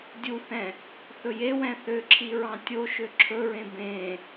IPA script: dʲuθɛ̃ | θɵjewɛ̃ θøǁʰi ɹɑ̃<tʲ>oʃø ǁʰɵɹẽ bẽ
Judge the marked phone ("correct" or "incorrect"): correct